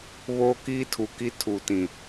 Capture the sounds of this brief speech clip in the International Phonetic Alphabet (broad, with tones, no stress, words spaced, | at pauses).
βoː˦kiː˦tʰu˨ki˦ tʰu˨tĩ˨